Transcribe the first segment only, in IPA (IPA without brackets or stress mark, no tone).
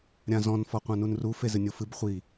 ɾʲ